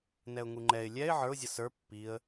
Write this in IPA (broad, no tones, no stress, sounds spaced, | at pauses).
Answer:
n ɛ ʊ̯ ŋ u ŋ͡ǃ ɛ ɪ̯ lʲ ɛ ɪ̯ ʕ ə˞ ʊ̯ zʲ ʌ s ə˞ pː i ə̯